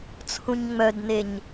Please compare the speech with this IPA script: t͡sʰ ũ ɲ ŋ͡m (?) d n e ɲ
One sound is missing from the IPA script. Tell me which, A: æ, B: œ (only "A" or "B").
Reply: B